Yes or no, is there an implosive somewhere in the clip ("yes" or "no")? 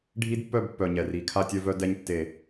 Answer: no